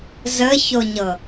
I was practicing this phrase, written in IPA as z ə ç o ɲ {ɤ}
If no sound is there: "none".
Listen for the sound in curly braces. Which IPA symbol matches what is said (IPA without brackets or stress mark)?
ɤ